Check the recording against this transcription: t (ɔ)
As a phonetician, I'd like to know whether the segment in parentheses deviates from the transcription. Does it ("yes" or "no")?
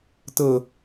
yes